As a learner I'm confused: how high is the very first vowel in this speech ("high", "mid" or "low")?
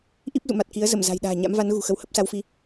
high